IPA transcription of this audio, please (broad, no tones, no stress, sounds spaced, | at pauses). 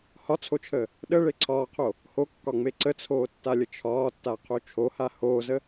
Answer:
h ɒ t͡sʰ o t͡ʃʰ əː | ɗ ə ɭ e ǀʰ ɒː qʰ o | h o kː ɒ ŋ͡m e ǀ ə t͡sʰ oː tː a lʲ ə t͡ʃʰ ɒː tː a qʰ o t͡ʃʰ o h a h oː z ə